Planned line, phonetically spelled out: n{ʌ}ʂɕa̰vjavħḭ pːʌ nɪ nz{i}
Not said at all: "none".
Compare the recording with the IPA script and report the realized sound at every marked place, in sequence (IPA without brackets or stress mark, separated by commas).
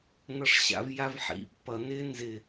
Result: ʌ, ɪ